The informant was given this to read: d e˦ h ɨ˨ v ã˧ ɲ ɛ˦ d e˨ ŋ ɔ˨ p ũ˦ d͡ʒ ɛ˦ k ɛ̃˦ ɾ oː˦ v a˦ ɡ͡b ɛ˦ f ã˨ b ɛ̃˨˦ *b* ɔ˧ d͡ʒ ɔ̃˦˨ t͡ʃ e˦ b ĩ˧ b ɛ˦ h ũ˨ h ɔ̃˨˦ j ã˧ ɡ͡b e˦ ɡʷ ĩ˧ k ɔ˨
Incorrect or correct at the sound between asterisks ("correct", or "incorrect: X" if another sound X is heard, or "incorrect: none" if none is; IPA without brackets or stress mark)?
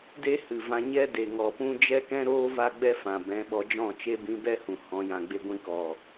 incorrect: ɓ